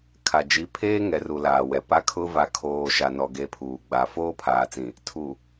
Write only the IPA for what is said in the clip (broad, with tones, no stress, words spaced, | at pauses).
kʰa˨d͡ʒi˨˦ pʰeː˦ŋɛ˨ru˨ laː˨wɛ˨ pa˦kʰʊ˦ va˨kʰoː˨ ʃa˨nɔ˨ ɡe˦pʰuː˨ ɡ͡ba˨ foː˦pʰaː˨t͡sĩ˨ | tʰu˨